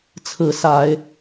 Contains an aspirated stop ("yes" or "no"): yes